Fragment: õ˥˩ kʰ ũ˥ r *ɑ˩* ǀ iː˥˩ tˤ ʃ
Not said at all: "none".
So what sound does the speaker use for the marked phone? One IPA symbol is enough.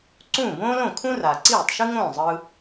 a˩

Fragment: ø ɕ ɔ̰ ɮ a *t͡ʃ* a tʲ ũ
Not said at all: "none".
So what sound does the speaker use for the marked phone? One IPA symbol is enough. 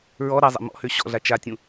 t͡ʃ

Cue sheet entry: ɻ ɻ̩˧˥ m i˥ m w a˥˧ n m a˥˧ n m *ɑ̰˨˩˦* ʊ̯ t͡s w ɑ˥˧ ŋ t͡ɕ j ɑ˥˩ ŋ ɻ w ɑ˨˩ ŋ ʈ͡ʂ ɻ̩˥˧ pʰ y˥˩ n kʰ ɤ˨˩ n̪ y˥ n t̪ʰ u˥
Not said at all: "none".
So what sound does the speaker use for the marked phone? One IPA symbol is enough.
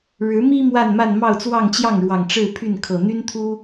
ɑ˥˧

